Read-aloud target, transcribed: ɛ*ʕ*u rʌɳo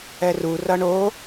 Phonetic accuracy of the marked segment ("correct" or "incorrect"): incorrect